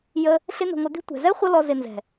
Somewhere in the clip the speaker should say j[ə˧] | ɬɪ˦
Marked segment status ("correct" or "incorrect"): correct